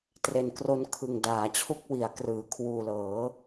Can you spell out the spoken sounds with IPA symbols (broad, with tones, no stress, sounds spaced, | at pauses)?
t r e˨˩ n k r o˧ n kʰ ɯ˨˩ ŋ d aː˩˦ t͡ɕʰ u˦˥ k̚ w i˩˦ a̯ k r ɯː˩˦ kʰ w uː˨˩ l ɤː˩˦